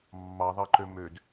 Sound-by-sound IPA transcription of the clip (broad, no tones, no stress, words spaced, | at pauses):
mːɑðˤɑǃø mød